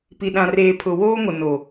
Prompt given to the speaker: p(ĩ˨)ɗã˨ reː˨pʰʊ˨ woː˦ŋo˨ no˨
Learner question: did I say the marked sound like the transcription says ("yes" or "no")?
no